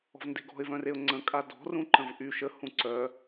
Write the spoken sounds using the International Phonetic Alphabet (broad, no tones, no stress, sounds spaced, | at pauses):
ɔ̤ v n d e̤ ɡ ɔ̤ ɪ̯ v œ̃ r e ʊ̯ ŋ͡ǀ ə̃ kʼ a d ɔ̤ r ũ ǃ ə̃ v ʔ y ʃ ə h ũ ǀ œ